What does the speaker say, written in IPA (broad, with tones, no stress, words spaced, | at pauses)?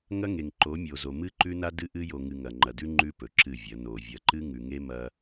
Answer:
ŋɐ˦ŋe˨ŋ ǃo˨˦ mʲo˨zo˨ mɨ˦ ǃʉ˦na˦dɨ˦ ʔɨ˦jo˨ŋɨ˨ ŋɐ˨ŋ͡ǃɐ˨dʉ˦ ŋ͡ǃʉ˦pɵ˨ ǁɨ˦˨vʲɐ˨˦ no˨ vʲɐ˨ǃɨ˦ ŋʉ˨ŋe˦ mɐ˦